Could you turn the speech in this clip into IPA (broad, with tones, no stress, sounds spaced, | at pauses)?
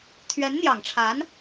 t̪ʰ ɥ ɛ˧˥ n n̪ j ɑ˨˩ ŋ ʈ͡ʂʰ a˧˥ n